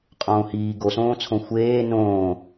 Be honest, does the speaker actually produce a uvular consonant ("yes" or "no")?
yes